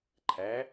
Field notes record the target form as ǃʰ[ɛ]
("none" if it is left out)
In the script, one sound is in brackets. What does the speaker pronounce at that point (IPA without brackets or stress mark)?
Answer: æ